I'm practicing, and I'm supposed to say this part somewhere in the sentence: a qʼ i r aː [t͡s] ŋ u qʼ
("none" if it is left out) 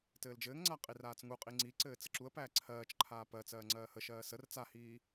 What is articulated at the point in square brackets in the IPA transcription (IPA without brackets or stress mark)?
t͡s